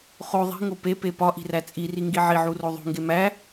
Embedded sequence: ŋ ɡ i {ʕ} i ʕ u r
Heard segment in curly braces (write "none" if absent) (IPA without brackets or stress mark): ʕ